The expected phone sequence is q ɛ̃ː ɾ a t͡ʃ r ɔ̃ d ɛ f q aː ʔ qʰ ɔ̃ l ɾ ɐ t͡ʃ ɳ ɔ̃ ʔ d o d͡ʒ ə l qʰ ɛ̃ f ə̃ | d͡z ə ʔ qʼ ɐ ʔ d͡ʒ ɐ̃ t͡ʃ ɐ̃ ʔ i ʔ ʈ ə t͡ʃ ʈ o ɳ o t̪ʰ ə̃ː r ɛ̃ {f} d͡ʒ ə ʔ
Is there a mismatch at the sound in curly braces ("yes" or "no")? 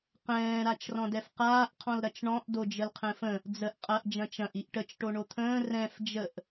no